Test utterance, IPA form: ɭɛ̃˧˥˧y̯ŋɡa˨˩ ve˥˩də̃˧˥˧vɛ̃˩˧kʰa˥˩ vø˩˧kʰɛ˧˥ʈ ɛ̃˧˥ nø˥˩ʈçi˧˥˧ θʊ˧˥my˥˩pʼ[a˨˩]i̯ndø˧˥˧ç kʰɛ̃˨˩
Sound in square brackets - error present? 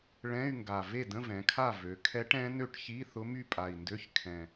no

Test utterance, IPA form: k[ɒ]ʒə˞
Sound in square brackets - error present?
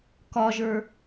no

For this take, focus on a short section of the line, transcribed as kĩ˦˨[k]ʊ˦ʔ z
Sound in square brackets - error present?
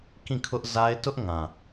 yes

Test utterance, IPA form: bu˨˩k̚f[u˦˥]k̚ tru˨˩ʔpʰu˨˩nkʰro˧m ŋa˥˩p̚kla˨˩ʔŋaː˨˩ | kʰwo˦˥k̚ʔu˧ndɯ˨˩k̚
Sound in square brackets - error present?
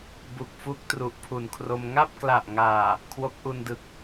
no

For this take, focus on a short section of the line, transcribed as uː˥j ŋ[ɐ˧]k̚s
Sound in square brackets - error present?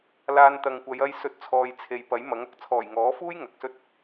yes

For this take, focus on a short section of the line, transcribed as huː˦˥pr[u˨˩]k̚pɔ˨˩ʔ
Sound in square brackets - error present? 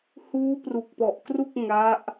no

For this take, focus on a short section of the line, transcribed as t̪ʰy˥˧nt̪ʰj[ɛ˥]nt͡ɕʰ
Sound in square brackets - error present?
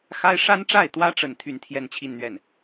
yes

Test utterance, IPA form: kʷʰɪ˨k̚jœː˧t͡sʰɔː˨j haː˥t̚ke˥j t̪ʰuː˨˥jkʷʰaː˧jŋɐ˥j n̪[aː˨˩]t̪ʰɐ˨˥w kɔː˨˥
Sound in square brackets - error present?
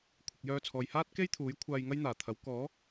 no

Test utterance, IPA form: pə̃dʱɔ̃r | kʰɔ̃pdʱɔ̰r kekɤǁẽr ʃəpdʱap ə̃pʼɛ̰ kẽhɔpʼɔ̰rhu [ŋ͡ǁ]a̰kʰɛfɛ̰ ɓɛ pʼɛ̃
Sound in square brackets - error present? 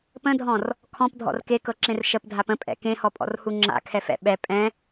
no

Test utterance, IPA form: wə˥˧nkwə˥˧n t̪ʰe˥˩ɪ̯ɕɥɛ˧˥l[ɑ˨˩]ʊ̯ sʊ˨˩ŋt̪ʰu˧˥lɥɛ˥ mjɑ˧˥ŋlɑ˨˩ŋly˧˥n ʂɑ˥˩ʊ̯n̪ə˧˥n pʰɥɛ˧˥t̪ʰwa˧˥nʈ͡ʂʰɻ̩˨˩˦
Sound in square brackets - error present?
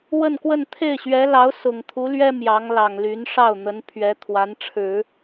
yes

